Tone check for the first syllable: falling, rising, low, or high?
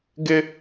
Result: high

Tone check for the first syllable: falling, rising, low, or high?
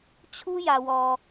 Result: high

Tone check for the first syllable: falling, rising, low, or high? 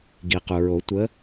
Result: low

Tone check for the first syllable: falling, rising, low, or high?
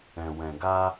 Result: low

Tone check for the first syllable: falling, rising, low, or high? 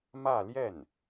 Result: falling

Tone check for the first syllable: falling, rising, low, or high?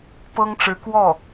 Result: high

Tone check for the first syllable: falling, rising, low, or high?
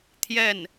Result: falling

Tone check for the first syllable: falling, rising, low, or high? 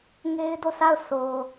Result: high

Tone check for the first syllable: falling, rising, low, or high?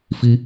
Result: high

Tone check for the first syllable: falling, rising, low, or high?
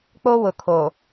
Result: high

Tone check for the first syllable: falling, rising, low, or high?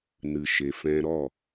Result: low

